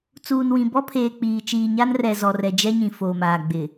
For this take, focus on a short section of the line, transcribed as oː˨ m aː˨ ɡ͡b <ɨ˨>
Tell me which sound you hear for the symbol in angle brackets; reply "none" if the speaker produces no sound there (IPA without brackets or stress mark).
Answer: ɪ˨